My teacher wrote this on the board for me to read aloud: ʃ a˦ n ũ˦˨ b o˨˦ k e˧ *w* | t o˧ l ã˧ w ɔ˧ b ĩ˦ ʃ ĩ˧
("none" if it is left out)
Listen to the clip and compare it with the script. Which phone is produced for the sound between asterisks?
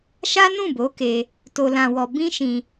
none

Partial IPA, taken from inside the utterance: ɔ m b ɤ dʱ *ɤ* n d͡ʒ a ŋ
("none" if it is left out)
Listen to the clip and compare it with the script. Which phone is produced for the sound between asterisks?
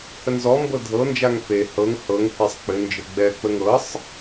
ɤ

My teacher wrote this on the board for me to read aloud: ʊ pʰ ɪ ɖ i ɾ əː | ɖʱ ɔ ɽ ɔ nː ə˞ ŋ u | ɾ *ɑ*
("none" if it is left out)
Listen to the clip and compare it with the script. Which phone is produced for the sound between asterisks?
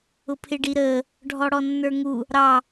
ɑ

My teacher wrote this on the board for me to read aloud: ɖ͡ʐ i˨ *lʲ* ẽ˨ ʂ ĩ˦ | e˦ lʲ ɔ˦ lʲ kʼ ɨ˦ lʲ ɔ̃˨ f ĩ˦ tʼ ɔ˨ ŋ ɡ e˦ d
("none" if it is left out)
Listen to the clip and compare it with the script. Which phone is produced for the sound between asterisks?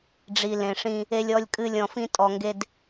l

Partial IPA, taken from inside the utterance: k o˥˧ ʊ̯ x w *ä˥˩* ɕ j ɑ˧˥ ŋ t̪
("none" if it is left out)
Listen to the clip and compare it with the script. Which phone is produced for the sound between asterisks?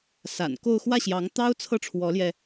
ä˥˩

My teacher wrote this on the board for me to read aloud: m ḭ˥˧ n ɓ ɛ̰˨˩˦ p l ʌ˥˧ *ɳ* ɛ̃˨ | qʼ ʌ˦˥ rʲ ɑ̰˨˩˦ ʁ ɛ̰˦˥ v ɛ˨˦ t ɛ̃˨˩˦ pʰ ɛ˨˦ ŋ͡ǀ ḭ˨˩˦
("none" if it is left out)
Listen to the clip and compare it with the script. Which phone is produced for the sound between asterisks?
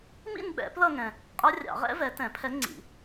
ŋ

